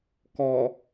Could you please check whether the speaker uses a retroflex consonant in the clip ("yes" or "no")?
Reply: no